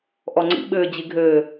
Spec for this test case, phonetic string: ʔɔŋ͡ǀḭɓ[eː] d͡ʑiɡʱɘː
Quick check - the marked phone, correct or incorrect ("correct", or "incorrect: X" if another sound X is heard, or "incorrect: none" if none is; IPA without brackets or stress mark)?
incorrect: ɘː